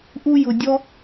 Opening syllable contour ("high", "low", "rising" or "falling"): high